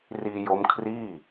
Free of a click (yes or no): yes